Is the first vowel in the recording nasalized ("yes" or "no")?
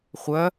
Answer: no